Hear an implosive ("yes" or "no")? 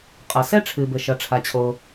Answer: no